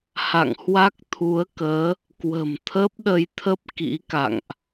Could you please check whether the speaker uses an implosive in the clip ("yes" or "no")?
yes